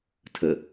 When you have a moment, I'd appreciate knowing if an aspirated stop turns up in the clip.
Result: yes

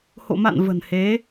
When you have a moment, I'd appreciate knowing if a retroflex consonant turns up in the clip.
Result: no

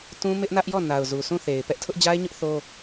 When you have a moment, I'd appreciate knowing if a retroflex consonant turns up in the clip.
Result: no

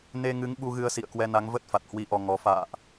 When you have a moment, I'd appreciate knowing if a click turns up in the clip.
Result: no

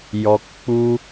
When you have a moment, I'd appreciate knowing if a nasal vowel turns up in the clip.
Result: no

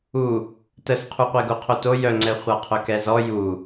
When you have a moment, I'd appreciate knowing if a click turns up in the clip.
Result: yes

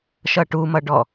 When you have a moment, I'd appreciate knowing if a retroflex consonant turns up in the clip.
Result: yes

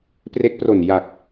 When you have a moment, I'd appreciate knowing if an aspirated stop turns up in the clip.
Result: no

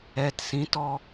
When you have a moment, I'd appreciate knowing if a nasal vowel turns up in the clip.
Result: yes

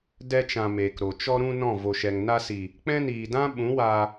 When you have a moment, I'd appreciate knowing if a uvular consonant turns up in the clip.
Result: no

